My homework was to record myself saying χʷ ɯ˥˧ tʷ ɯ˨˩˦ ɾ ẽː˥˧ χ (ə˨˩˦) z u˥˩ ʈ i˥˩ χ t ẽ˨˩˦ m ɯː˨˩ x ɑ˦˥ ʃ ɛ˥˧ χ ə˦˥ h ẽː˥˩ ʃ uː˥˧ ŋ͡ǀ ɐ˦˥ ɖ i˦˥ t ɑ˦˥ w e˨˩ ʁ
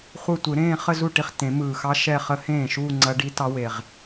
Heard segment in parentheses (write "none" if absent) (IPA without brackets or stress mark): ə˥˧